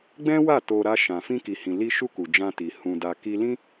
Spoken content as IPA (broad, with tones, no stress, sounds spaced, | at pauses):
ɡ͡b ɛ̃˦ w a˦˨ t o˧ ɾ a˧ ʃ ã˨ f ĩ˧ k i˨ h ĩ˨ l i˧ ʃ u˧ k u˨ d͡ʒ ã˧ t i˨ h ũ˧ d a˧ k i˦ l ĩ˦